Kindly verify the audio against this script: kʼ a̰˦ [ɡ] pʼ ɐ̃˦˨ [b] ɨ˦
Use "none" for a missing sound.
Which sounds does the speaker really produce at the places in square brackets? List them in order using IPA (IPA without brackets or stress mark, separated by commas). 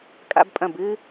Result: b, b